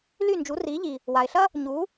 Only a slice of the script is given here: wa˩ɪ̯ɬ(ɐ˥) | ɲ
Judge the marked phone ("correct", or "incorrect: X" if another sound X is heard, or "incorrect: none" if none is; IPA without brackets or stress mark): correct